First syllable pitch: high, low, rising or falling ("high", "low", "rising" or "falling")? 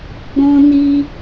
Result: high